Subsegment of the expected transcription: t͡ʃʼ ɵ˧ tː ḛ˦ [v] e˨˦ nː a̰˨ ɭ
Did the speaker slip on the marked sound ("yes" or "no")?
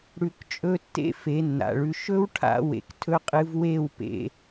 yes